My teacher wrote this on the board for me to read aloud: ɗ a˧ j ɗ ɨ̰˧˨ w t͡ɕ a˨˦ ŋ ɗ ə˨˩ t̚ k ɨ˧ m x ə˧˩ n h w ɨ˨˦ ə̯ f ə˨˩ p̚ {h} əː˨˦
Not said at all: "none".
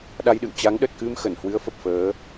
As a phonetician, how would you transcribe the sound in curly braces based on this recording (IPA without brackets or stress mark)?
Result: f